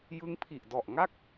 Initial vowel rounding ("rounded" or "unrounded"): unrounded